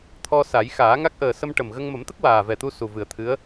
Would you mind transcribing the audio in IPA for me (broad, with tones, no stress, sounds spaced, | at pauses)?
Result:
t̪ʰ ɔ˧ s a˨˩˦ j x aː˨˩˦ ŋ a˦˥ k̚ ʔ əː˨˩ s ə˧ m ʈ ə˨˩ m ɣ ə˧ ŋ m ə˨˩˦ m t̪ ə˦˥ k̚ w aː˨˩ v ɛ˨˩ t̪ u˧ s u˨˩ v ɨ˨˩˦ ə̯ t̪ʰ ɨ˧˥ ə̯